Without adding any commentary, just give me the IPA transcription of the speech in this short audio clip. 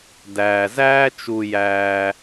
d æː˩ z æː˦ t͡ʃ u˨ j æː˨

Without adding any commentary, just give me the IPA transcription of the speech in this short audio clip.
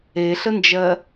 e ɬ ə n d͡ʒ ɜ

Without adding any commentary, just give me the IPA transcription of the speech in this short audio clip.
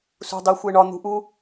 s ṳ dˤ i xʷ e ɳ ɒ n̪ ṳ ʔ u

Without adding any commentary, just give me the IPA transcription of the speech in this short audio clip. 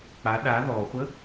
k͡p a ɗ a ð ɔ χʷ ə

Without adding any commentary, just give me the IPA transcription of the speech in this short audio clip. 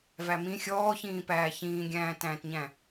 v æ m ĩ xʲ ɔː ç ĩː p æː ç ĩː ɡʲ æ̃ː t æ̃ː t ɲ æ̃

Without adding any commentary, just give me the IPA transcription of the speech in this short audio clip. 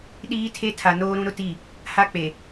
ɗ iː˦ tʰ e˦ tʰ a˨ n oː˦ ɾ ũ˦ ɾ ʊ˦ t i˦˨ | h a˦ k͡p e˨

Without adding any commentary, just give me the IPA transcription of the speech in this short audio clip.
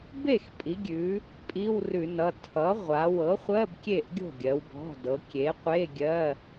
b e˥˩ x pʼ i˩˧ ɡʲ ʉ˩˧ | pʼ i˧˥˧ w r ʉ˧˩˧ n ʌ˩˧˩ tʰ ʌ˩˥ ʁʷ a˩˧ w ɤ˩˥ χʷ ɜ˧˥˧ b kʲ e˥˩ ʔ ɡʲ o̤˥˩ ɡʲ ɜ˩˧ w b ɔ̤˩˧˩ d ɤ˩˧ kʲ e˩˥ qʷ e˧˥˧ ɡʲ ɜ˧˥˧

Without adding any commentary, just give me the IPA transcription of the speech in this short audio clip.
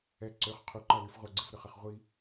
ɛ ǀ ø χ qʰ u ǃ ɐ l y f ʁʷ ɐ ɡ͡ǀ i f ɾ ʏ χ ɐ χ ʁʷ i

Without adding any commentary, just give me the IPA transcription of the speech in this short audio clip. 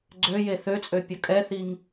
ɡ͡ǀ ø j e θ ø t͡sʼ ø pʲ ɔ kʼ ɛ θ i ŋ

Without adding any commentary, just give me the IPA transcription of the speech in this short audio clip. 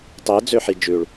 tˤ i d͡z ø ħ i d͡ʒ ʉ ɭ

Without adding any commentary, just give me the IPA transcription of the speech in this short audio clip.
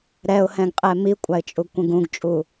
ɾ ɛ ʊ̯ h ɛ̃ ɡ qʼ ɛ m i kʷʼ a ɪ̯ t͡ʃʼ u ɡ kʷ ə̃ ɡ ũ ɡ t͡ʃʼ u

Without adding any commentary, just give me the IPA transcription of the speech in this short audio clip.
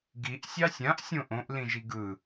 ɡ i ʔ sʲ ɑ sʲ ã ʔ sʲ õ ʔ õ ʔ l ĩ ʒ i ɡ ɯ

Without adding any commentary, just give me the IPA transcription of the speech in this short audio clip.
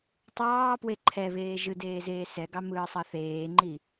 tˤ ɑː p w e ǃʰ ɛ β eː ʒ ɯ d eː z eː s ɛ ɡ ɑ m ɯː sˤ ɑ θ eː ŋ͡ǃ i

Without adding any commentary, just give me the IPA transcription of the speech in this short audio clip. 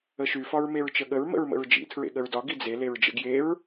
ə ʃ y f ɒ ɹ m e ɹ t͡ʃ ə ɠ ə ɹ m ə̰ ɹ m ə̰ ɹ d͡ʒ ḭ tʰ ɹ ḛ ɠ ə ɹ d ɒ ɡ i d͡z e l e ɹ d͡ʒ ə̰ ɡ j e ɹ

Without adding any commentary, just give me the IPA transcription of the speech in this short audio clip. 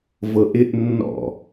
v ɤ ʔ ɪ ʔ nː ɔ̰

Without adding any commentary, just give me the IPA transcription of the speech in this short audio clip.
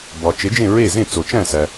b ɒ˩ t͡ʃ e˩˥ d͡ʒ ẽ˥˩ ɹ e˥˩ z ẽ˥˩ t͡s o˩ t͡ʃ æ̃˥˩ s æ˩

